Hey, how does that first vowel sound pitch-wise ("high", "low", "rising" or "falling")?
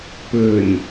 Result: low